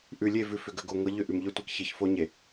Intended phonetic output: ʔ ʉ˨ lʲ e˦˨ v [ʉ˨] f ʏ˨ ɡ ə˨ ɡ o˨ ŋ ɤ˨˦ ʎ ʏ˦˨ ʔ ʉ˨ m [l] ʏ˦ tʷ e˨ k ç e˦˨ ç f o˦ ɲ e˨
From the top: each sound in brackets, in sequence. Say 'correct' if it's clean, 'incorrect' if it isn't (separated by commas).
correct, incorrect